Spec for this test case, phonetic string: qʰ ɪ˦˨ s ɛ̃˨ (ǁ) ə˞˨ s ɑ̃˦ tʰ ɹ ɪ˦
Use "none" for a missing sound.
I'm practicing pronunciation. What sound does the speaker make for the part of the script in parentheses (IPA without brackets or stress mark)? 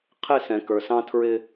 k